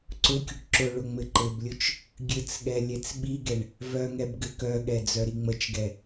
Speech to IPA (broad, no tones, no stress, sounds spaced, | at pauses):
ǀ ʊ kʲ ʊ ʈ ǁ ʊ ɭ ʊ ŋ͡m ɘ ǃ ɘ b lʲ ʊ t͡ʃ | ɡʲ ɘ t͡s ɠ ɛ lʲ ɛ t͡s ɓ i ɡ ɛ ɳ | v œ ŋ ɛ b ɡ ɘ k œ ɠ ɛ d͡z œ ɾ i ŋ͡m ə t͡ʃ ɡ ɛ